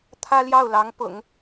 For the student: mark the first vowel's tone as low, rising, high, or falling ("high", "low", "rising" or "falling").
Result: high